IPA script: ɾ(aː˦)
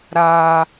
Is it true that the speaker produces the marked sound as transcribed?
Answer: yes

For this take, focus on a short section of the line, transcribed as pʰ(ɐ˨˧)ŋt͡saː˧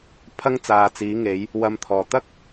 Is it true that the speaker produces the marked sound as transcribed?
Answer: no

